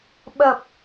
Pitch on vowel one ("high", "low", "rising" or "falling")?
low